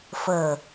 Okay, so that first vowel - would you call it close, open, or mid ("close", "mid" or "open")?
mid